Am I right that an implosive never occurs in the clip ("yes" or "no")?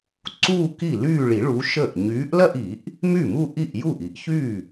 yes